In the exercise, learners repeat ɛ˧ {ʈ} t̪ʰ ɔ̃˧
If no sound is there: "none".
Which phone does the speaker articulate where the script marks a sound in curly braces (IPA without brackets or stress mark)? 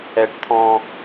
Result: ʈ